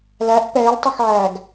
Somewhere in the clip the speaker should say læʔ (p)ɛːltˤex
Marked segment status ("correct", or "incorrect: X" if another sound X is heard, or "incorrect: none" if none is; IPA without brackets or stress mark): correct